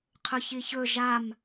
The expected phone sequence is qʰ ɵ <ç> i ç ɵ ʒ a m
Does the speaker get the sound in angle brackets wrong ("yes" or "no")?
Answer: no